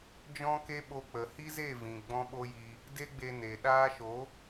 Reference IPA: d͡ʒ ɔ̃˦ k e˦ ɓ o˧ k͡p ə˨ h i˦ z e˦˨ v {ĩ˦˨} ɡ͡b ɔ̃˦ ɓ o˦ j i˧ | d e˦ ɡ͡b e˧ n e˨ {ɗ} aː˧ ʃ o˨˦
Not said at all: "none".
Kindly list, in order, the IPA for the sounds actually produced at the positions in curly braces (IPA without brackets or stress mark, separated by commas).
ĩ˨, ɗ